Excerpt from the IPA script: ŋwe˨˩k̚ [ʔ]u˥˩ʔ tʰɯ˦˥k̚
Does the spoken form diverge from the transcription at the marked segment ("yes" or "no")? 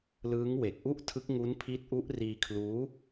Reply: no